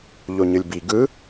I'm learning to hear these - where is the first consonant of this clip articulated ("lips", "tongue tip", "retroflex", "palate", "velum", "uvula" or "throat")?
palate